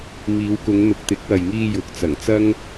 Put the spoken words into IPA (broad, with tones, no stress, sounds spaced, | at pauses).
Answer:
m iː˨˧ w k ʊ˨˧ ŋ n̪ ʊ˨ k̚ t̪ ɪ˨˥ k̚ w ɐ˨ j ŋ iː˧ j ʊ˨˥ k̚ t͡s ɐ˨˩ ŋ t͡s ɐ˥ ŋ